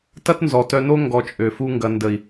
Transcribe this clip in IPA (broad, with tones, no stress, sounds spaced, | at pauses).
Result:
t ɐ˦ t n z ɔ˨ t œ˧ n o˦ ŋ ɡ ɔ˧ t͡ʃʼ ø˨ f u˦ ŋ ɡ ɐ˧ n d ə˨ i̯